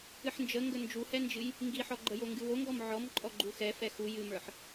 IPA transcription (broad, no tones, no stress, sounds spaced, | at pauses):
ɨ ħ n d͡ʒ ə ŋ ɡ ə n d͡ʒ u h ɛ n d͡ʒ ɨ j | ŋ ɡ i ħ ɔ ɡ͡ǃ ə j o ŋ ɡ ɨ w o ŋ ɡ ɔ m ʕ ɔ m ǃʼ ɔ ɡ͡ǃ u x ɛ f ɛ x u j ɨ m ə˞ ħ